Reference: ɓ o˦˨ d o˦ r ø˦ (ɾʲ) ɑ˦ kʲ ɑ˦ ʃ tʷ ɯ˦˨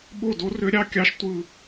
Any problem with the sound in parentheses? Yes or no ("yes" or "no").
no